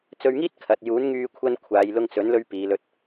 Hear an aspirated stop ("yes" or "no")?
yes